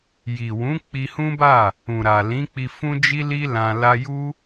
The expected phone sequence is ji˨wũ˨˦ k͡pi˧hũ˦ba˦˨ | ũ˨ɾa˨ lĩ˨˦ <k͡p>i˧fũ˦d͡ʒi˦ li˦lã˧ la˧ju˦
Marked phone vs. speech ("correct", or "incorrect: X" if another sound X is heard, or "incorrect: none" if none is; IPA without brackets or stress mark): correct